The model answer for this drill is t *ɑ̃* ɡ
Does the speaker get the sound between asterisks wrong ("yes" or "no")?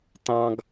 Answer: no